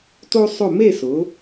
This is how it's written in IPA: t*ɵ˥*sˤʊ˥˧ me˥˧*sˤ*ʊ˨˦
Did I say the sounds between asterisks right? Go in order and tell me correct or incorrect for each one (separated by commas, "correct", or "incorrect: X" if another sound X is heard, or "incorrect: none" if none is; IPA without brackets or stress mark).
incorrect: o˥, incorrect: s